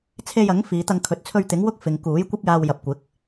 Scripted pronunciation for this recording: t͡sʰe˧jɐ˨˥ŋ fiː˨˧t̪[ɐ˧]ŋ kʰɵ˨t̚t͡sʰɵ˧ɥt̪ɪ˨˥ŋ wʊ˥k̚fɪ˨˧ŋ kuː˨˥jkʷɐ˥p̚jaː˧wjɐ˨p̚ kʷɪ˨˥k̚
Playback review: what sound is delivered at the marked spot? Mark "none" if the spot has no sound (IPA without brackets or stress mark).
ɐ˧